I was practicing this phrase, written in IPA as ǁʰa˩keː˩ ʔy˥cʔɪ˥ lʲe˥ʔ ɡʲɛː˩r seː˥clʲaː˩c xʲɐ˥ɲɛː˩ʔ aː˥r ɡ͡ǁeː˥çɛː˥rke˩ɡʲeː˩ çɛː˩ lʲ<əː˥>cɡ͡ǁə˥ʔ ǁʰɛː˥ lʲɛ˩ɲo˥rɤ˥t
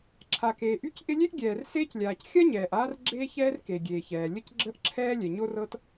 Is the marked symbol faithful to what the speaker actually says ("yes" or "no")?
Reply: no